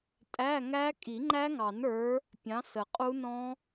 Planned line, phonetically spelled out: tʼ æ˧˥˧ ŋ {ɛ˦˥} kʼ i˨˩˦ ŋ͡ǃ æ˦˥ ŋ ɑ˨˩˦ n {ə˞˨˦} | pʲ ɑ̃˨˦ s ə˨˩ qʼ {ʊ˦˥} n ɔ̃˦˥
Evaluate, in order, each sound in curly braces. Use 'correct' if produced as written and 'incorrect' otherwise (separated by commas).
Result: incorrect, correct, incorrect